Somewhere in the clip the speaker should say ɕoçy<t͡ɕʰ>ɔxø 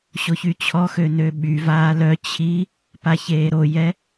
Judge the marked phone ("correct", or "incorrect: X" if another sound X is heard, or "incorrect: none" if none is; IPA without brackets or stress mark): correct